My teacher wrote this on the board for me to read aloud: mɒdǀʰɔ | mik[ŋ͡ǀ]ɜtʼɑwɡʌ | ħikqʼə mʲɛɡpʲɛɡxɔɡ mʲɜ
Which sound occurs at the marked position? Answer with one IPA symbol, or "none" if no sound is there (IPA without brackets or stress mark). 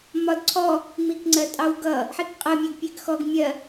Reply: ŋ͡ǀ